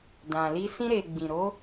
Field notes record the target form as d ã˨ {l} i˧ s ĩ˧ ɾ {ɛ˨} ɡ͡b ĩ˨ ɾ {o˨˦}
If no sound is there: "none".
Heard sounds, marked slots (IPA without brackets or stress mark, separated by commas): l, e˨, o˨˦